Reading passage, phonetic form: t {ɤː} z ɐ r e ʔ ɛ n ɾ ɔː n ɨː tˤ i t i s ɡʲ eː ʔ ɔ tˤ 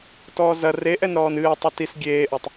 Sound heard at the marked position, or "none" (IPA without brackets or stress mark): ɔː